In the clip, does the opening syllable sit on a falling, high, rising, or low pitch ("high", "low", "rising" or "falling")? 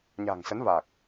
low